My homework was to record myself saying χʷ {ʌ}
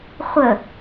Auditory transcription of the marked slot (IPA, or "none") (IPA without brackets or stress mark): ə